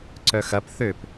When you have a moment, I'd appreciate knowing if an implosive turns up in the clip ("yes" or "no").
no